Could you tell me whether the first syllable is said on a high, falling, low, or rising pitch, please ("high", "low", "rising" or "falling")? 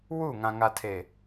falling